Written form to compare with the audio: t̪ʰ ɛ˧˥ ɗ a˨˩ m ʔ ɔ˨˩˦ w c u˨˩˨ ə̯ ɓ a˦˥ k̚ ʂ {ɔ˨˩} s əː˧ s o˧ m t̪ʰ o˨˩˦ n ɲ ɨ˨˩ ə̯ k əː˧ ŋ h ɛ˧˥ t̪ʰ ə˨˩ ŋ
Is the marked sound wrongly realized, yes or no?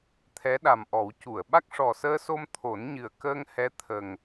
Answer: no